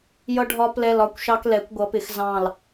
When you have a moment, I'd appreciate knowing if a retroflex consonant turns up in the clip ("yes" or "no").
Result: yes